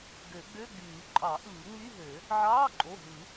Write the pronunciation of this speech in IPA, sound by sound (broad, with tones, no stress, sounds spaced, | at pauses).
ɡ ø˨˩˦ ɡ͡b ø˧˥˧ ɡ͡b yː˨˩˦ ǃʼ ɑ˨˩˦ ʔ ɯː˨˩˦ ŋ͡m y˧˥˧ ɦ ø˨˩˦ | ʕ ɑː˧˥˧ ǃʼ o˩˧˩ ɦ ɯ˨˩˦